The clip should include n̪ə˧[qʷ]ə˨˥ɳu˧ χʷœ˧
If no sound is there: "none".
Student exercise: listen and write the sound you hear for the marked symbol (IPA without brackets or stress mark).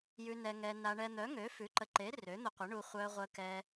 qʷ